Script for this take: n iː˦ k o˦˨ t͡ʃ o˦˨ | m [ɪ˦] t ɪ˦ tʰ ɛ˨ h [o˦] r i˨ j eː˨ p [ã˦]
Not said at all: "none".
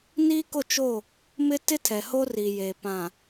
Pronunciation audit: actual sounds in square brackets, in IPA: ɪ˦, o˦, ã˨

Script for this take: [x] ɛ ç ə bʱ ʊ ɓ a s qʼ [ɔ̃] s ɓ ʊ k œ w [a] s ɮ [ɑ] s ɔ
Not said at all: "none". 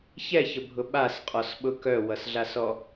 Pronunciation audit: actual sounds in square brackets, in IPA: ç, ɔ, ʌ, a

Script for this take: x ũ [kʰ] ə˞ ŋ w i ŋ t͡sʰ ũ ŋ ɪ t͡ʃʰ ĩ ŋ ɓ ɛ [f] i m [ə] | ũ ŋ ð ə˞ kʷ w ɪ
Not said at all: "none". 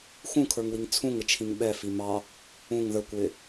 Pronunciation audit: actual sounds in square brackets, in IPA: kʰ, f, ɑ

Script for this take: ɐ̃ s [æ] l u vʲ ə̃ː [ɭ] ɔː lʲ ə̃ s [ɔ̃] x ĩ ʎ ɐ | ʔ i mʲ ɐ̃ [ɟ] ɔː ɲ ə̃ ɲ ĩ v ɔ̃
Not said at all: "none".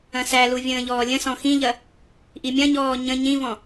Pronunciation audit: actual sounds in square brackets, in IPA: æ, ʎ, ɔ̃, ɲ

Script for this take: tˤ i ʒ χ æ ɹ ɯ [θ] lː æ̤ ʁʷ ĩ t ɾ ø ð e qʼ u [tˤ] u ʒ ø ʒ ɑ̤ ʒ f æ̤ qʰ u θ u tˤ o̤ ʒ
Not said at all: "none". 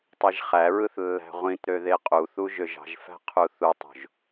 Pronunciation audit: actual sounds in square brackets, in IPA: θ, θ

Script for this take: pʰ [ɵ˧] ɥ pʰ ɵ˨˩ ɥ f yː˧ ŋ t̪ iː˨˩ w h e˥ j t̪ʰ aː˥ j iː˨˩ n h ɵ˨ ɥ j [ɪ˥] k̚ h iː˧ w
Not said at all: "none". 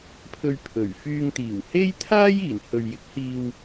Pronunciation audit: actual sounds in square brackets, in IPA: ɵ˧, ɪ˨˥

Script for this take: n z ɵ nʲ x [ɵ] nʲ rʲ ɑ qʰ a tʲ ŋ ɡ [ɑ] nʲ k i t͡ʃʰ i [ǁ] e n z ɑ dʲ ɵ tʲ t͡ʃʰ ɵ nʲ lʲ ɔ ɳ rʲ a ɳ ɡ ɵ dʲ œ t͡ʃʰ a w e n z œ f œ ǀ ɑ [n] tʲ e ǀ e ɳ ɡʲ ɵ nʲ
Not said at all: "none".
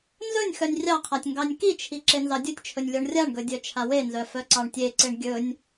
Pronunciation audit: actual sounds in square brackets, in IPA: œ, ɑ, ǁ, ɳ

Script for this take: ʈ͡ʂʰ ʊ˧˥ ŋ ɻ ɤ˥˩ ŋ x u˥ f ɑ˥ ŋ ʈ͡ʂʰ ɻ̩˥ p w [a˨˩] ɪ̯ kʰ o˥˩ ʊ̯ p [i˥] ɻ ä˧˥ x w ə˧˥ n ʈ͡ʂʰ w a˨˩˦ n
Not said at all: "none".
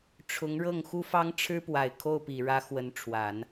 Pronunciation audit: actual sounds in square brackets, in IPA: a˨˩, i˨˩

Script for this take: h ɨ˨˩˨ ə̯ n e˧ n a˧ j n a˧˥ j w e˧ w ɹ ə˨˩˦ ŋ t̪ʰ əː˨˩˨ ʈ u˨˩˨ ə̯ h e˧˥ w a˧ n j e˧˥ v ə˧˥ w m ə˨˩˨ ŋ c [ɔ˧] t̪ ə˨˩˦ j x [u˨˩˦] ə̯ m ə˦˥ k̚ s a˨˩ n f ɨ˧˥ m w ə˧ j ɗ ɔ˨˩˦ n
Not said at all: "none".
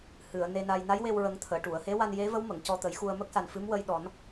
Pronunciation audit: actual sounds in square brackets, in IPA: ɔ˧, u˧

